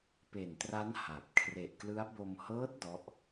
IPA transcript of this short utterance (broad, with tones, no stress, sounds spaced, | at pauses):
p e˨˩ n t r a˦˥ n h a˨˩ p̚ kʰ r e˨˩ ʔ k l ɯ˦˥ a̯ b o˧ m h ɤː˦˥ t̚ d ɔ˦˥ ʔ